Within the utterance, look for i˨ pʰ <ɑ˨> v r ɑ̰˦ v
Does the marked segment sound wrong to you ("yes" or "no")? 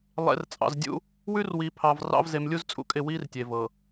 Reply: no